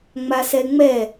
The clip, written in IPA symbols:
ŋ͡m a s ɛ ŋ͡m ɛ

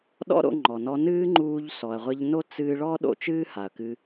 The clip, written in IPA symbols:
ɗ ɔ̰˦ ɾ o̰˧ ŋ͡ǃ ɔ˨ n ɔ˧ n ɨː˦ ŋ͡ǃ uː˧ ʎ s ɔ˨ ɐ̯ ʁʷ ɘ˧ ʎ n o˦ t͡s ɨː˧ ɭ ɔ˦ ɗ o̰˧ t͡ʃ ɨː˦ h a˨ ɐ̯ k ɨ˧

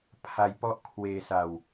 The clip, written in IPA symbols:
pʰ a˦˥ j p ɔ˥˩ ʔ kʰ w eː˧ s a˧ w

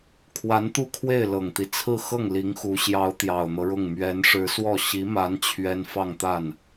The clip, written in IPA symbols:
kʰ w a˧˥ n t̪ u˥˧ kʰ w e˥˩ ɪ̯ l ɤ˨˩ ŋ t̪ i˦ t͡sʰ ɹ̩˥˧ x ɤ˥˩ ŋ l i˧˥ ŋ x u˧˥ ɕ j ɑ˧˥ ʊ̯ t̪ j ɑ˨˩ ʊ̯ n̪ ɤ˦ ɻ ʊ˥˩ ŋ m ɥ ɛ˧˥ n ʂ ɻ̩˧˥ s w ɔ˥˩ ɕ i˧˥ m a˧˥ n t͡ɕʰ ɥ ɛ˥ n f ɑ˥˧ ŋ t̪ a˥˩ n

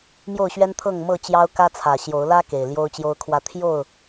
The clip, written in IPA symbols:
m j o˥˨ ʊ̯ ɕ ɥ ɛ˦ n t̪ʰ ɤ˥˨ ŋ m ɤ˥˨ t͡ɕ j ɑ˦ ʊ̯ k ä˦ t͡sʰ ä˨˩ ɕ j o˨˦ ʊ̯ l ä˦ k e˨˩ ɪ̯ l j o˦ ʊ̯ t͡ɕ j o˦ ʊ̯ kʰ w ä˥˨ t̪ʰ j o˥˨ ʊ̯

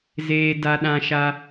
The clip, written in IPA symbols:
z eː˦ d a˦ ɗ ã˦ ʃ a˦

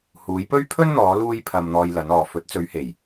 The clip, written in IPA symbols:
h uː˨˧ j p ɵ˥ ɥ pʰ ɵ˥ n n̪ ɔː˨˧ l uː˥ j pʰ ɐ˧ m n̪ ɔː˧ j l ɐ˨˧ n ɔː˨ f ɵ˨˥ t̚ t͡s ɵ˨˧ ɥ h e˨˩ j

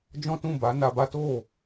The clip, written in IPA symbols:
d͡ʒ ɔ̃˦ t ũ˦˨ b a˨˦ n a˧ b a˦ t o˦˨

